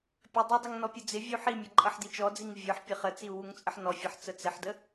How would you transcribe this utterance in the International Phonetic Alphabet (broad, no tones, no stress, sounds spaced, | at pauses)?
pʲ ə dˤ ʊ dˤ ʊ ŋ n ɔ pʲ ʊ d͡z ɪ vʲ u ħ i mʲ ʌ ǃʼ ʌ ħ d i t͡ʃ ɔ d͡z i ŋ vʲ ə˞ ħ pʲ ə χ ə t͡s i u̯ w u ŋ t͡sʼ ə ħ n ɔ fʲ ʌ ħ t͡s ə t͡s ɪ ħ d ə